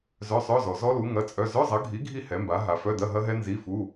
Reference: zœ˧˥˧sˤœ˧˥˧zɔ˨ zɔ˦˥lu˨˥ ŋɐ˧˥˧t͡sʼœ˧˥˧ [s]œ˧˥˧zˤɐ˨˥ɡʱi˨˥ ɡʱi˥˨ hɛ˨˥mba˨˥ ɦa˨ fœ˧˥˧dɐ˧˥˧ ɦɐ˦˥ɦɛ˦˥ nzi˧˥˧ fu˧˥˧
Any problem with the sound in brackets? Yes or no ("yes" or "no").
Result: yes